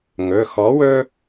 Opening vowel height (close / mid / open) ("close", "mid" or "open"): mid